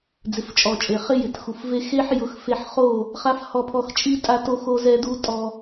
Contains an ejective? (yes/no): yes